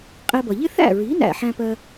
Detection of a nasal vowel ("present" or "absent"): present